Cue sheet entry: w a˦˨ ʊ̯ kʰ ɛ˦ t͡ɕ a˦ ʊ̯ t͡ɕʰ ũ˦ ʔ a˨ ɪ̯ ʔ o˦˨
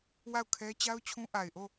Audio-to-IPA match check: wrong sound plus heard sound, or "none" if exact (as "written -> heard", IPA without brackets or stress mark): none